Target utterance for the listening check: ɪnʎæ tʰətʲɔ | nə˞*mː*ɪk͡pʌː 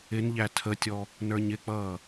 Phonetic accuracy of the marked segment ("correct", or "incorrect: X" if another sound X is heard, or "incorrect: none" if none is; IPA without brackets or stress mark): incorrect: ɲ